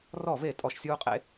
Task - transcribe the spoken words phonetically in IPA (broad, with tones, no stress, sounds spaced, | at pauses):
r ɔ˥˨ v e˥˨ tʼ ɔ˥˨ ʃ sʲ uː˦ qʼ ḛ˦